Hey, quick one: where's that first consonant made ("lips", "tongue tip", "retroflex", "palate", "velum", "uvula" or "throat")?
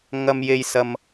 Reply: velum